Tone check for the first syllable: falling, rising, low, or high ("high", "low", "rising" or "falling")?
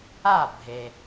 falling